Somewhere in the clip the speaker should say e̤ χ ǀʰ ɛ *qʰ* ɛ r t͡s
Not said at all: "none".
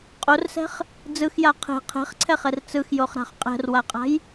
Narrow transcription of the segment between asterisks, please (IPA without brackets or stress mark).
χ